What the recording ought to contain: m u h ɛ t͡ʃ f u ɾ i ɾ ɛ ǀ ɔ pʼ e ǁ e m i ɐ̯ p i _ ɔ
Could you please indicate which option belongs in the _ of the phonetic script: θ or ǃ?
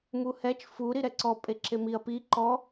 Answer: ǃ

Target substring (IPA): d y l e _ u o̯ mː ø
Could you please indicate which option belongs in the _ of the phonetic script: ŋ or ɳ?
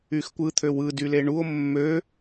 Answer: ɳ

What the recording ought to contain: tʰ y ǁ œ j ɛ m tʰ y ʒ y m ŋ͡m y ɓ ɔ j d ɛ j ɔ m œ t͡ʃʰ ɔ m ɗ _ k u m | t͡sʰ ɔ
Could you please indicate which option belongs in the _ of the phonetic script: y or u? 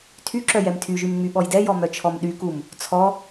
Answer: y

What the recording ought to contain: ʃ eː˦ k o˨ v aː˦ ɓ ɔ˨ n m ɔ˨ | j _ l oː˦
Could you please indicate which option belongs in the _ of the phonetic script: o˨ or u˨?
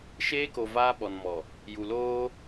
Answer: u˨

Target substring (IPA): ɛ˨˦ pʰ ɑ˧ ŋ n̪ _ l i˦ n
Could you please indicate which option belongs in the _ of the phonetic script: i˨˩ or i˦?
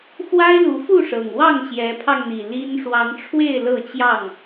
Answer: i˨˩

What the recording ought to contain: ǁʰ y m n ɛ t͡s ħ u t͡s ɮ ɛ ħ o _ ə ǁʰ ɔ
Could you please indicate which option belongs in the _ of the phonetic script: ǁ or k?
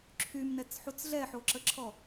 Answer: ǁ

